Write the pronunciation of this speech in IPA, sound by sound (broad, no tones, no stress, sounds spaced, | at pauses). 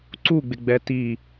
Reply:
ǀ u ɡ͡b ɪ ɡ͡b ɛ t i